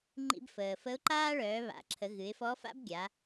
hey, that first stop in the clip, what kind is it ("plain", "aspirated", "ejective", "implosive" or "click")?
click